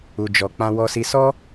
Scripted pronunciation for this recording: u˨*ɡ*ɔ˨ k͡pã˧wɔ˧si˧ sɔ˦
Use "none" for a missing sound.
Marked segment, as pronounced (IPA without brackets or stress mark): d͡ʒ